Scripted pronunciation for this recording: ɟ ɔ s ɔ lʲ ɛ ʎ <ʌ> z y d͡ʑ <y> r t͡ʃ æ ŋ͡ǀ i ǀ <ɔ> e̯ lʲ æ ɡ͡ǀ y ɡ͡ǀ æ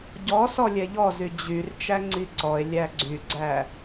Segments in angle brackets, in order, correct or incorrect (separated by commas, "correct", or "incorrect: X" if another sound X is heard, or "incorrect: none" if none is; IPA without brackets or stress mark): incorrect: ɔ, correct, correct